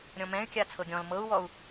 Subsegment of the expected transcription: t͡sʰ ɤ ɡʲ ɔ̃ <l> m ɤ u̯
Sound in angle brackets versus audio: correct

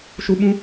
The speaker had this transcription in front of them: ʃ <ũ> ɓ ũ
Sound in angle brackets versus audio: incorrect: u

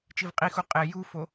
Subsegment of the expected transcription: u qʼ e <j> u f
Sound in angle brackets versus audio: correct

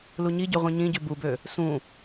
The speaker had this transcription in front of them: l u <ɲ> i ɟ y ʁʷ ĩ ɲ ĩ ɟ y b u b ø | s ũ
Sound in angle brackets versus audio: correct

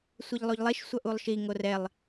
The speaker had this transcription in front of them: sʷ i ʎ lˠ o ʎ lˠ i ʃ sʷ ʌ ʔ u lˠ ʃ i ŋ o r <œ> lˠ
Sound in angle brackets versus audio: incorrect: ɛ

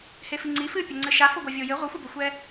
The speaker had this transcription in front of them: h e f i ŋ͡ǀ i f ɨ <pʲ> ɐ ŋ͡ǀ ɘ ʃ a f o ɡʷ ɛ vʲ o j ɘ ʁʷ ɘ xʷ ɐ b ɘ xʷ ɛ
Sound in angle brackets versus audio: correct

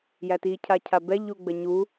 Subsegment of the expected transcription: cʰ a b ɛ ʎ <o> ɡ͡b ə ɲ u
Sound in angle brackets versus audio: incorrect: u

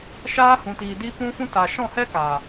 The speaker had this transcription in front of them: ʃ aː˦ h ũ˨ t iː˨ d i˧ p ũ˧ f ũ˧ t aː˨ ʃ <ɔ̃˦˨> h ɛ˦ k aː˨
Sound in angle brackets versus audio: correct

